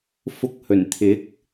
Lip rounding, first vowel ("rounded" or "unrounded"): rounded